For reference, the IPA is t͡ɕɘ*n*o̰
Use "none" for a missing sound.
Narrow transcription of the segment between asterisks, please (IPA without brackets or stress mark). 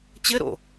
ɾ